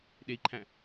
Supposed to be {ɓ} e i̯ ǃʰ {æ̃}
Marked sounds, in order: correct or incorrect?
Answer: incorrect: ɗ, correct

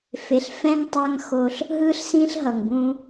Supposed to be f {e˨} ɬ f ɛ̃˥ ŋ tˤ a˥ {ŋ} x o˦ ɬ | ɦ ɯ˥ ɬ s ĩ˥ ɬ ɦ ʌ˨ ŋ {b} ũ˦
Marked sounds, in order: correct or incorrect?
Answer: correct, correct, correct

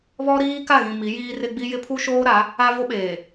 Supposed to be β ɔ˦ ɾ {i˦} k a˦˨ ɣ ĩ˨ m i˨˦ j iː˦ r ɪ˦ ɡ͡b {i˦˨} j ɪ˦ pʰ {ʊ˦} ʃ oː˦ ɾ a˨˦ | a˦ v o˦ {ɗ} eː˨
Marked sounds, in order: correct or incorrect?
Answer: incorrect: iː˦, incorrect: i˦, incorrect: u˦, incorrect: ɓ

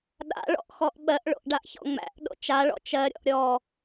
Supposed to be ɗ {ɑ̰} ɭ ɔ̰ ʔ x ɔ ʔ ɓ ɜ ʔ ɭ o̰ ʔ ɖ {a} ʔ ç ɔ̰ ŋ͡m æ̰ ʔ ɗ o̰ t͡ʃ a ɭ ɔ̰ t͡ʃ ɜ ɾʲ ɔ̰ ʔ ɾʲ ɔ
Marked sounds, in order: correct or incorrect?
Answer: incorrect: a̰, correct

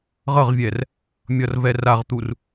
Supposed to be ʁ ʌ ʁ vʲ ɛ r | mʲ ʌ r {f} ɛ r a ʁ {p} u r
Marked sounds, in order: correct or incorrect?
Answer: incorrect: v, incorrect: t̪

